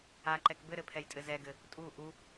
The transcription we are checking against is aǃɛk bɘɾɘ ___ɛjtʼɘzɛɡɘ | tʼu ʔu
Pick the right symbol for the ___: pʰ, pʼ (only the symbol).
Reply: pʰ